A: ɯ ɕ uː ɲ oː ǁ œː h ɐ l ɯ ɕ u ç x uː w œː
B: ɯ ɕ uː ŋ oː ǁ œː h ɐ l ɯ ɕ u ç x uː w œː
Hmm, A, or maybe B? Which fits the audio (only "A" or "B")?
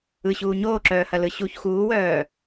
A